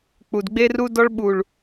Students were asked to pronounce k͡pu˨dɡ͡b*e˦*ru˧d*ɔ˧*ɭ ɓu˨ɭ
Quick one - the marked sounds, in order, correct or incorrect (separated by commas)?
incorrect, correct